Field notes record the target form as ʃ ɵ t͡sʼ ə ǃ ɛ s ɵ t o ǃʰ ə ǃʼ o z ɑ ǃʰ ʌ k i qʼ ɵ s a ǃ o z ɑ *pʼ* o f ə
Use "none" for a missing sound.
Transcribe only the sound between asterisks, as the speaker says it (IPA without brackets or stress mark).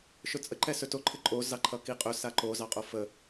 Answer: qʼ